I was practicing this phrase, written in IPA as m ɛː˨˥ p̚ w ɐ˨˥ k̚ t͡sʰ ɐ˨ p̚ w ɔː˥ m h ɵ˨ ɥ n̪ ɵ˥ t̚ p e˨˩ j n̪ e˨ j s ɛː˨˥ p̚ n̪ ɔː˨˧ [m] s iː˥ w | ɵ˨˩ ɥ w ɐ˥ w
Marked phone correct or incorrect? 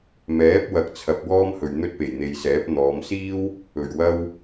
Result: correct